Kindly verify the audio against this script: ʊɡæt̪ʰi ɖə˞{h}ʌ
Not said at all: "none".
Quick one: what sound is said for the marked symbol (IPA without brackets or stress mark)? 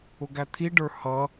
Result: h